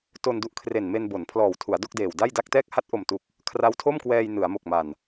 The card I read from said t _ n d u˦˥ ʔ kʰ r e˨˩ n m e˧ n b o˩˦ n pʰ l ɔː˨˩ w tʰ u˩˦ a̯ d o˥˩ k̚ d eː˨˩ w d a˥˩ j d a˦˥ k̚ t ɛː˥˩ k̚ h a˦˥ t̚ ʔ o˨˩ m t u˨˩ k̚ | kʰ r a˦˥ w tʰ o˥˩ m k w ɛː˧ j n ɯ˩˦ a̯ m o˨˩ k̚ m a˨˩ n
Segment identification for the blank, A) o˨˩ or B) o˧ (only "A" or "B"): B